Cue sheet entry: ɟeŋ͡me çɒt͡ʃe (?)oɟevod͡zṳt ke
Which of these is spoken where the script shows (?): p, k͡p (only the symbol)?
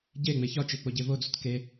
k͡p